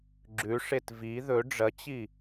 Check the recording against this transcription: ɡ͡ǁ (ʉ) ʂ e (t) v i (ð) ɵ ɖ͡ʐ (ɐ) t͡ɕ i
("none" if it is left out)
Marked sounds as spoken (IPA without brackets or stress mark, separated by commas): ʉ, t, ð, ɐ